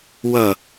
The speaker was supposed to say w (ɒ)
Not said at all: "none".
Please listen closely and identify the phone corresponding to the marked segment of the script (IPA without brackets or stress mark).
ʌ